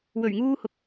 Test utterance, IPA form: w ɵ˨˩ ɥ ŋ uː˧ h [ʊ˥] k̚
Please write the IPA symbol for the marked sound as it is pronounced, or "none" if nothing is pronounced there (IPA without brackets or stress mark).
ʊ˨